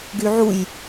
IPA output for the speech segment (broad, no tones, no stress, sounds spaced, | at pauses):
ɡ y ʕ u j